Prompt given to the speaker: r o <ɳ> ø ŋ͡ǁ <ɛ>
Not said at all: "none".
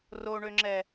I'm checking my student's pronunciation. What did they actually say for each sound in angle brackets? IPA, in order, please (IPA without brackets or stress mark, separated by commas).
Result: ɳ, ɛ